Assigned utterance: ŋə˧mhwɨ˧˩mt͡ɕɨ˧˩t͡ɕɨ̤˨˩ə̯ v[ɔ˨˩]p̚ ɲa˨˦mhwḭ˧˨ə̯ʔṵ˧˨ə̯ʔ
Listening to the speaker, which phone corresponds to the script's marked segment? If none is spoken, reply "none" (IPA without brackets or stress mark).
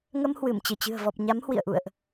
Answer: ɔ˨˩